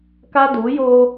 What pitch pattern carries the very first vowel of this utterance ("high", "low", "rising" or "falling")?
high